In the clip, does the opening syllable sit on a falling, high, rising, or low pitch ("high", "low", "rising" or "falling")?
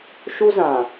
high